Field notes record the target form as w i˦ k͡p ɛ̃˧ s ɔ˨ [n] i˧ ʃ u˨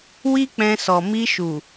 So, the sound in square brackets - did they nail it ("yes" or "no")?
no